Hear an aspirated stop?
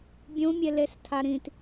yes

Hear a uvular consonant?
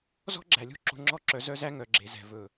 no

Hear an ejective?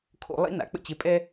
yes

